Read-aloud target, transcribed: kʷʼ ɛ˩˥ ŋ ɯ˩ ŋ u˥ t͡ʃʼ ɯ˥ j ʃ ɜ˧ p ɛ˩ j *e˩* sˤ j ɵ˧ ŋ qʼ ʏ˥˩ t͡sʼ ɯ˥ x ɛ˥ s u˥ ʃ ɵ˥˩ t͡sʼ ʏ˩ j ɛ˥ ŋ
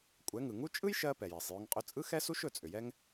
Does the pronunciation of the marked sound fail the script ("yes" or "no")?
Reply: no